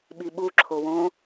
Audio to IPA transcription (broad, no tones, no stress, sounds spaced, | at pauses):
ɓ i ɓ u ǁʰ o w õ